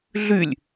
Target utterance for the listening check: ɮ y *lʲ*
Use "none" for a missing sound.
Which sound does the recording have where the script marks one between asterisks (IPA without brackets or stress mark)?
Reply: lʲ